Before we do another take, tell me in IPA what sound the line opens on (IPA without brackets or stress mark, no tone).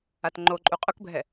a